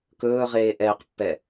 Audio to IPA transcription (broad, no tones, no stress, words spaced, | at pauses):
kɵːʁeː ʔɛːqpːɛ